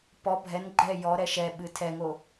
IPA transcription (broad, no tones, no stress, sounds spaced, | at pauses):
p ɔ bʱ ɛ n ɡ͡ǃ ɛ j ɔ ɾ ɛ ʃ ɛ ɓ ɨ tʰ ɛ ŋ o